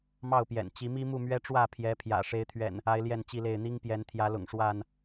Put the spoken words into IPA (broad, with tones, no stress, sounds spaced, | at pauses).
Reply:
m ɑ˥˨ ʊ̯ p j ɛ̰˨˩ n t͡ɕ i˨˦ m i˦ m u˥˨ m ɥ ɛ˦ ʈ͡ʂ w ä˥˨ pʰ j ɛ˨˦ pʰ j ä̰˨˩ ʂ e˨˦ ɪ̯ t̪ʰ ɥ ɛ̰˨˩ n | a˦ ɪ̯ l j ɛ˥˨ n t͡ɕ i˥˨ l e˥˨ ɪ̯ n̪ i˦ ŋ p j ɛ˨˦ n t̪ʰ j ä˨˦ l ʊ̰˨˩ ŋ ʂ w a˥˨ n